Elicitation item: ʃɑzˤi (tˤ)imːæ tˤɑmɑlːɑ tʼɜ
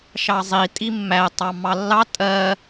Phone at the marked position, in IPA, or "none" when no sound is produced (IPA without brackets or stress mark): tʼ